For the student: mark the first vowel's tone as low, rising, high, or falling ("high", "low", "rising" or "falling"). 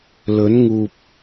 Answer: rising